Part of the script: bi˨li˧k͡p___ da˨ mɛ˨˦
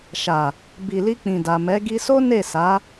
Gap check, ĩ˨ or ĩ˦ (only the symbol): ĩ˨